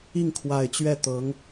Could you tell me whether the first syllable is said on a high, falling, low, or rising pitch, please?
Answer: falling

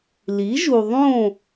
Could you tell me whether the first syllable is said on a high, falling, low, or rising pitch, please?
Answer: rising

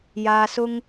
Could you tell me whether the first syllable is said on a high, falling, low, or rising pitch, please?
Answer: high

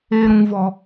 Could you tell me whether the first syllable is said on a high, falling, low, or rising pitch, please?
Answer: high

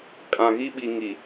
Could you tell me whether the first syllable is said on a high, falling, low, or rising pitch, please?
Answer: low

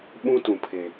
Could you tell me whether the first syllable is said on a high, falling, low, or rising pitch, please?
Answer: high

